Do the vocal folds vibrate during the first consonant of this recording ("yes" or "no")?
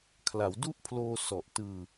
no